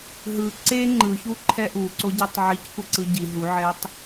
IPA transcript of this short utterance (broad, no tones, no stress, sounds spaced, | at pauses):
ɦ ɯ ǀ e ŋ͡ǃ ɯ ç u ǃʰ ɛ ʔ u ǀ o ɟ a tˤ ʕ i c kʷ ɛ ǀ ɯ ɟ i ɦ u ʕ ɛ tˤ